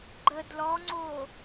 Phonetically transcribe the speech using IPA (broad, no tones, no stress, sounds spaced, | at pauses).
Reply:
ɡ͡ǃ ə d l ɔ ŋ͡ǀ o